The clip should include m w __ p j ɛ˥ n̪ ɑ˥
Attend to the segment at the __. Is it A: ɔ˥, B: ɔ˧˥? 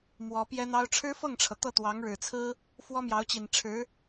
B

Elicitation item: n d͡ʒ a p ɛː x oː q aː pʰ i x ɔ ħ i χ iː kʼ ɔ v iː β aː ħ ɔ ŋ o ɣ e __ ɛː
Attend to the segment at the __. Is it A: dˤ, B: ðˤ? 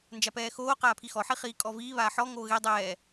A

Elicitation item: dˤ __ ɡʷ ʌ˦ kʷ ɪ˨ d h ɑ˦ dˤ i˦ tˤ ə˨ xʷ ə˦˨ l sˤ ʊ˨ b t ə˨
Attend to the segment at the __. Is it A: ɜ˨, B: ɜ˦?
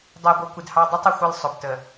A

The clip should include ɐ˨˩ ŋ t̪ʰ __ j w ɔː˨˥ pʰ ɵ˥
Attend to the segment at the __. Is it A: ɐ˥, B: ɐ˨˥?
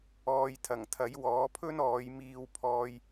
B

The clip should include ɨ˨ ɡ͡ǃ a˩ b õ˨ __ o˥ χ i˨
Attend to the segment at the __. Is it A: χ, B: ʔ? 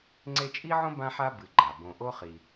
B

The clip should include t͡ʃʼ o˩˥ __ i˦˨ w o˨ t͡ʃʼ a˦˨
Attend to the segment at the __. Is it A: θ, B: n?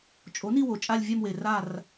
B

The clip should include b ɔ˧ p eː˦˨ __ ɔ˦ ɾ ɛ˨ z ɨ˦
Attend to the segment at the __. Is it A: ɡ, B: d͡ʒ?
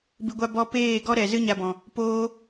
A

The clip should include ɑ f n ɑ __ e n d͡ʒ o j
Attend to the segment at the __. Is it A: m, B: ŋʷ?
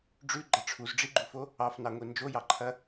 B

